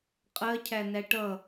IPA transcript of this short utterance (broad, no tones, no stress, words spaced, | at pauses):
qʼɜcʰænæ ʈʌ